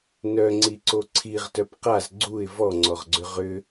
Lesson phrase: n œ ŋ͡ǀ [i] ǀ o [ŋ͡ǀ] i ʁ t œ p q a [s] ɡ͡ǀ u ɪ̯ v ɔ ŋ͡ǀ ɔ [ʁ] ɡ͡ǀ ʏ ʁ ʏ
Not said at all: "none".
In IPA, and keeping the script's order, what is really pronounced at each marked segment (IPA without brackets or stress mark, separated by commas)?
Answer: i, ǀʰ, z, ʁ